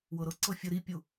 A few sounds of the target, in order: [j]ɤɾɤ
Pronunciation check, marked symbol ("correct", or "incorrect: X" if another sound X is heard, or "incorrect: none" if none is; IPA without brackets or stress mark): incorrect: w